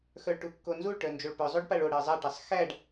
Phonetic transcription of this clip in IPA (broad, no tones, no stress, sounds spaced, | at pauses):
x œ ɭ ʈ u kː o n z u ɭ ʈ œ n d͡ʒ o ɭ p œ zˤ o ɖ p a ɭ o ɽ e zˤ a ʈ e sˤ x æ ɖ